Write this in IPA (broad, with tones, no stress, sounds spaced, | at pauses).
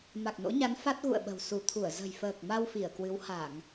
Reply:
m a˨˩ k̚ n o̰˧˥ ɲ a˨˦ n f a˦˥ t̚ ɣ ṵ˧˨ ə̯ ɓ ə̤˨˩ w s u˧˩ t̪ʰ u˧˩ ə̯ z ə̤˨˩ j f əː˨˩ k̚ m a˧ w f i˧˩ ə̯ k w ɨ˨˦ w h a˧˩˨ ŋ